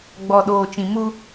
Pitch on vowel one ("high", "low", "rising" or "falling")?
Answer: low